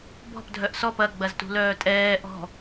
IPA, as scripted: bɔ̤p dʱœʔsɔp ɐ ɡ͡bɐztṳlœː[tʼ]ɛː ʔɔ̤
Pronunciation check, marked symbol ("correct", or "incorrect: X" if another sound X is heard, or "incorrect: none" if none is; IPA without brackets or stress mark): correct